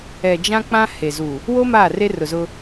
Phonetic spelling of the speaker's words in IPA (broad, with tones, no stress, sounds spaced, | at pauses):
ɛ˨ d͡ʒ ã˦ k͡p ã˦ h e˨ z u˨ | w o˦ m aː˦˨ r e˦ r ʊ˨ z ʊ˦